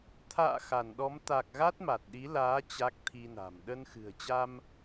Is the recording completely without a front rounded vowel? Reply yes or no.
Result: yes